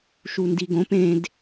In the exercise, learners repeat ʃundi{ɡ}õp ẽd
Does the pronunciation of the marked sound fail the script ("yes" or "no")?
no